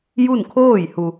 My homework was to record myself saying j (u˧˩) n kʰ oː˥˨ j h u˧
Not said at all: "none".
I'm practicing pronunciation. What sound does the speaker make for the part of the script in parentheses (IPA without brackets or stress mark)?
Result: u˥˨